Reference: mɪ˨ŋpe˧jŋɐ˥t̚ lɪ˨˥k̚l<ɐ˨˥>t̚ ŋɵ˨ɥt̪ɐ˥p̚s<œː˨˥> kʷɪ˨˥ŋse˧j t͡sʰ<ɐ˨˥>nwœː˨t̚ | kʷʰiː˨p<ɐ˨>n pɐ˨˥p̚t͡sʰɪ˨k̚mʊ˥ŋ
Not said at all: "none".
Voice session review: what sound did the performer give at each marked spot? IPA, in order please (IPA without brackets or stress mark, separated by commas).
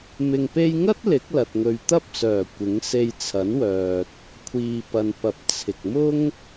ɐ˨, œː˨˩, ɐ˨˥, ɐ˨